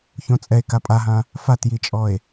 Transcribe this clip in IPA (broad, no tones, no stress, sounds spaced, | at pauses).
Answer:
ç õ t͡sʼ ɛ e̯ k a pʼ a ɦ ã | f a t j i t͡ʃʼ ɔ e̯